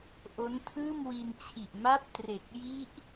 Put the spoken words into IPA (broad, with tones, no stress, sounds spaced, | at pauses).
ʔ o˦˥ n tʰ ɯː˥˩ m w i˧ n t͡ɕʰ i˨˩ ʔ m a˥˩ p̚ t r e˨˩ k̚ j i˦˥ ʔ